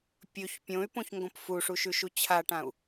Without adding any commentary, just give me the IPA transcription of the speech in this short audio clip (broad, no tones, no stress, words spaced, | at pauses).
pʲɵç pʲõy̯põçŋɡõp fuʂuʃʉʃu t͡ɕʰaʈãu̯